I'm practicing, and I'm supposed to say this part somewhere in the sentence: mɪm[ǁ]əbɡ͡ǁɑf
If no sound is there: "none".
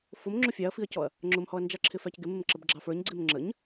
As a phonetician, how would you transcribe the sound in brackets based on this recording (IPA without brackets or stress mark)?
ǁ